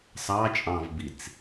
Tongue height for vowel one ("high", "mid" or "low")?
low